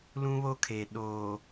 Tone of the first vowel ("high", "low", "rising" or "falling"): high